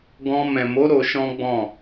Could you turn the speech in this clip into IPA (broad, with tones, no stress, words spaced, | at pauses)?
ɡɔ̃˧ mɛ̃˨mo˨˦ ɾo˧ʃɔ̃˦ɡ͡bɔ̃˦˨